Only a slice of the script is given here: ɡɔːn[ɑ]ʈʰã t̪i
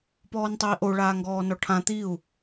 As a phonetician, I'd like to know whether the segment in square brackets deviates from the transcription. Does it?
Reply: yes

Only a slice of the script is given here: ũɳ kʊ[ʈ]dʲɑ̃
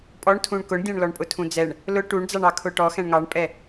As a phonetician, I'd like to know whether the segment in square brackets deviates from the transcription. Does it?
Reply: yes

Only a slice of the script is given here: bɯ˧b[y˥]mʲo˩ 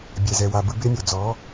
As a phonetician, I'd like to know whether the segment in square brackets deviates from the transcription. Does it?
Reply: yes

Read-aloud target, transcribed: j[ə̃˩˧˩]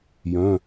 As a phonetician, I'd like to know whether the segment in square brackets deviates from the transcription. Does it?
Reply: yes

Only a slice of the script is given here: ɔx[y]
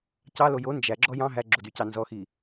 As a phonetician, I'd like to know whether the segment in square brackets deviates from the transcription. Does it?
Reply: yes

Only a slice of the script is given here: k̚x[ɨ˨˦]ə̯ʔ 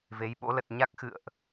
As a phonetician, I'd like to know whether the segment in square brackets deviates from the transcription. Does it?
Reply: yes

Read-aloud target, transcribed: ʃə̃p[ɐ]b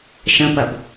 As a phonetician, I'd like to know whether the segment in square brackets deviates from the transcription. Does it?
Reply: no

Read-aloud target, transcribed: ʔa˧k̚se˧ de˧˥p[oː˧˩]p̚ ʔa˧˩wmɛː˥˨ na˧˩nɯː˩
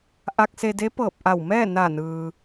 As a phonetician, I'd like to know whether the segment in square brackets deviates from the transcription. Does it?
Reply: yes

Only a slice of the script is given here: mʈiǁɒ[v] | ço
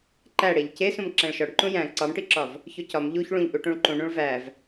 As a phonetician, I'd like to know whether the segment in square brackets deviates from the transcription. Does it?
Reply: no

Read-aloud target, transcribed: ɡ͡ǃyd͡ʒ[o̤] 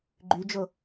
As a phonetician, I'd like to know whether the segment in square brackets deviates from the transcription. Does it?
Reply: yes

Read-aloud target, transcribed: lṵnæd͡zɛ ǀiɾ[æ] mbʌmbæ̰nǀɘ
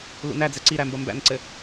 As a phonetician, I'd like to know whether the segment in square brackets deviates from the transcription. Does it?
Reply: no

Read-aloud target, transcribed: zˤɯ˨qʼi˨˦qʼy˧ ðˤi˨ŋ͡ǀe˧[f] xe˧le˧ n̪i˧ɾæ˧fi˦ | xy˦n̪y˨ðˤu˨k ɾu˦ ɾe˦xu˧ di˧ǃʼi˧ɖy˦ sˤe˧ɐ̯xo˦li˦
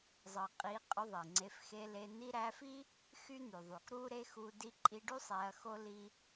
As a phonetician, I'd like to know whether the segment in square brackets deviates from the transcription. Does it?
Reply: no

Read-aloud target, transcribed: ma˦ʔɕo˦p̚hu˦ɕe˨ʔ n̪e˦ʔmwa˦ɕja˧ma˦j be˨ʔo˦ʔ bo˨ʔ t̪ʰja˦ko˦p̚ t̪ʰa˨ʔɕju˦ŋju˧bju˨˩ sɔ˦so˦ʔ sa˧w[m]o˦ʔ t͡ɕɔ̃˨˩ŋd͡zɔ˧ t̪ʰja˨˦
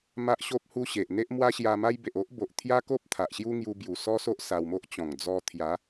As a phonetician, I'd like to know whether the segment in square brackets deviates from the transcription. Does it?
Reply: no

